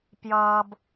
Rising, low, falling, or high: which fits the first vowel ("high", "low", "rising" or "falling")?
high